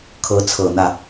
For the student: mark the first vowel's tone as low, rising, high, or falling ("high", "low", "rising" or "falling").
rising